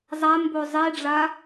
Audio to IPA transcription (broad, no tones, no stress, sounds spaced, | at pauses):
zˤ a m b o zˤ i ɖ͡ʐ a